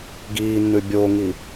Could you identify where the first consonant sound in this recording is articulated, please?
velar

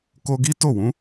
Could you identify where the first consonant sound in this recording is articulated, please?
velar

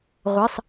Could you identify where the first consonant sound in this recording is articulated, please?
uvular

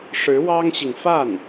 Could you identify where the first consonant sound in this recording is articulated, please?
retroflex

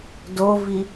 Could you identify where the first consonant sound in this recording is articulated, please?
alveolar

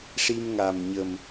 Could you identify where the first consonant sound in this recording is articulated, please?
retroflex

